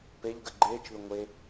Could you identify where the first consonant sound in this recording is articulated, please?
labial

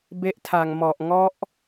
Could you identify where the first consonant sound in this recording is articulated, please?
labial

